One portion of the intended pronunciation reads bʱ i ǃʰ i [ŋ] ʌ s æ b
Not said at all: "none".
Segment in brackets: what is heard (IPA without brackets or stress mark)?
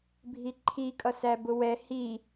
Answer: kʼ